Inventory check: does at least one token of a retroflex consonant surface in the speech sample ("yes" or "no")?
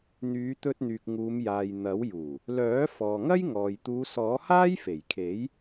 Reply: no